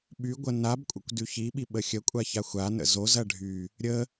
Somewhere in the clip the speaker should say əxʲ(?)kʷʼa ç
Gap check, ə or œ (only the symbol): ə